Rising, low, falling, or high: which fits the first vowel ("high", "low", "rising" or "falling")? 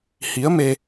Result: rising